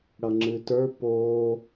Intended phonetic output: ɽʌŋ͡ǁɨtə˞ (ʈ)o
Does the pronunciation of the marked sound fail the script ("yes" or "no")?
yes